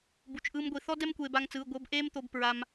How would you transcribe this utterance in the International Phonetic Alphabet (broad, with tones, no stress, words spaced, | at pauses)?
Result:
bu˧t͡ʃʔɯː˥mɡʷi˧ θɔ˥dɛ˥mkʷeː˧ ba˥ŋt͡sɯː˧˥˧ ɡʷɤ˧˥˧bʔeː˥mt̪o˧b pɹa˧m